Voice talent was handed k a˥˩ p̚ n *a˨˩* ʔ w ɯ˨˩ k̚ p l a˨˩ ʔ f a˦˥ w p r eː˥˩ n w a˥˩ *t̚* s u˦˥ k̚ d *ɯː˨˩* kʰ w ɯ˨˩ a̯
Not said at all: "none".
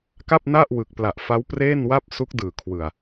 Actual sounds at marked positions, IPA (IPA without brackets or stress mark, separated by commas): a˥˩, p̚, ɯː˨˩